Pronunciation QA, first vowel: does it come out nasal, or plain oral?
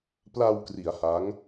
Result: oral